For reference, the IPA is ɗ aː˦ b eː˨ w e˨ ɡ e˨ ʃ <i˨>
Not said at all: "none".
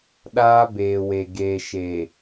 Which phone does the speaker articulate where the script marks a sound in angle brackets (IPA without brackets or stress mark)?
e˨